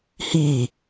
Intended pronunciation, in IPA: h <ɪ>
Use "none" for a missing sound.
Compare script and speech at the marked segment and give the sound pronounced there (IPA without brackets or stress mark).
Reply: i